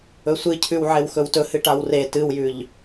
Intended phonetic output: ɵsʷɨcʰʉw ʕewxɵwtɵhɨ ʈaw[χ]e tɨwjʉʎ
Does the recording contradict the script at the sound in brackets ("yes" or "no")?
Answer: yes